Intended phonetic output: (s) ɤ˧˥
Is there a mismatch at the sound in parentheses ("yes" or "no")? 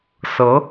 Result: no